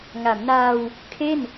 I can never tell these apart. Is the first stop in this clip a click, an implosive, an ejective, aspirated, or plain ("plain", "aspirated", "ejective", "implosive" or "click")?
aspirated